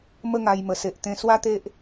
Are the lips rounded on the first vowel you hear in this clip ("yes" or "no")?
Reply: no